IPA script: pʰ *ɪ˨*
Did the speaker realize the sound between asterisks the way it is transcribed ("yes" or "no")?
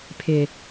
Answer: yes